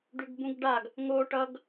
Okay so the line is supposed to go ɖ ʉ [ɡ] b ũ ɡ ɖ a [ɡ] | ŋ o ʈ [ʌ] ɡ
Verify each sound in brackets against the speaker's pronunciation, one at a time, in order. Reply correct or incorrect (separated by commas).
correct, correct, correct